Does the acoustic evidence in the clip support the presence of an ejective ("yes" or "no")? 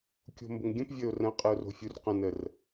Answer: yes